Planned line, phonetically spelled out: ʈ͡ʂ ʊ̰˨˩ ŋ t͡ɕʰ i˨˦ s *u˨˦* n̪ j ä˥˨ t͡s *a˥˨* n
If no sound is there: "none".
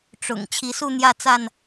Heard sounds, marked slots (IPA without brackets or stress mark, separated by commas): u˥˨, a˥˨